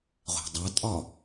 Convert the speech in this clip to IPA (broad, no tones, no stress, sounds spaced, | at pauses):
ʁʷ æ̤ dˤ a tʼ ɒ